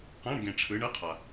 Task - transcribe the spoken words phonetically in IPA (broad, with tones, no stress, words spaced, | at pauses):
qã˧˥˧ɳ ɡẽ˨ʈ͡ʂʰɯ˨˦ ɳɯ˧˥˧qʰa˨